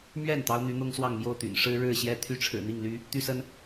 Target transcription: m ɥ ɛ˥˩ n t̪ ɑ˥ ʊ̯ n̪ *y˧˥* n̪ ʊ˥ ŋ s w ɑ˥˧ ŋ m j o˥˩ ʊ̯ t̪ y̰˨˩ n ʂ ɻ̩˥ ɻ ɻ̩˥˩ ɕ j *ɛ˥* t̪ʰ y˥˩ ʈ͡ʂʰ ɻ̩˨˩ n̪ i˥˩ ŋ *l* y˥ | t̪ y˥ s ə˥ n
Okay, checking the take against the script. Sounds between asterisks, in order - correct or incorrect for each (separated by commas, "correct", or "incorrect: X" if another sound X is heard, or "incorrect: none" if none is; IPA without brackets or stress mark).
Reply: correct, correct, correct